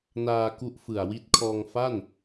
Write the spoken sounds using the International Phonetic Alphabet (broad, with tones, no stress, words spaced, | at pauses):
naː˧ ku˦˥ʔfɯ˨˩a̯wi˦˥t̚kʰɔː˧ŋ fa˥˩n